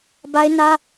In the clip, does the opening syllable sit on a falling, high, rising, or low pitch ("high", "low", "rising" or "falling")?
high